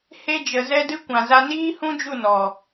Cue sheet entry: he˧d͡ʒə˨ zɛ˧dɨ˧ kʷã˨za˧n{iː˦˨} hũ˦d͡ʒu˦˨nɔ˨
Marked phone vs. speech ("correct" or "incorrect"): incorrect